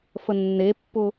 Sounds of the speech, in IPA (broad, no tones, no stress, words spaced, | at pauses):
fənːepːʊ